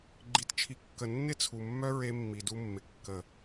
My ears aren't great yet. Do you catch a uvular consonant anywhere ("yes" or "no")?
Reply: no